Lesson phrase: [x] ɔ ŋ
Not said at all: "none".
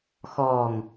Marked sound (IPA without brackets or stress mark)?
x